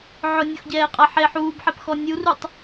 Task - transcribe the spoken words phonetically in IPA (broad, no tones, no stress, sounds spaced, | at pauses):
ʕ ʊ nʲ o x ɟ ɛː qʼ a ħ e ħ uː b ħ ɛ p x ɔ nʲ u r u tˤ